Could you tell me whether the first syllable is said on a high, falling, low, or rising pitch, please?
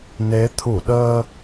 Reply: rising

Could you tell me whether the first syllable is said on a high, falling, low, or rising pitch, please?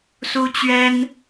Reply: high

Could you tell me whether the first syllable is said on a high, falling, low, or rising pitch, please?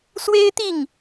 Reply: high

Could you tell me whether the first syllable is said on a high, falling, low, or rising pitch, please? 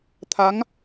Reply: rising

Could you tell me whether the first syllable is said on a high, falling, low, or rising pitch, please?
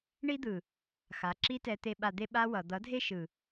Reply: high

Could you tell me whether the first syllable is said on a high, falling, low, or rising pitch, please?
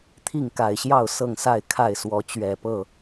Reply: falling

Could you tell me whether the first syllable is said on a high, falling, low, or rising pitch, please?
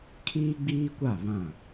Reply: high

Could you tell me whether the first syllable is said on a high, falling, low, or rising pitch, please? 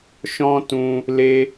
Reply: high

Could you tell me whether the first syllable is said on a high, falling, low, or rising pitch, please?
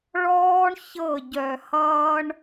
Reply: high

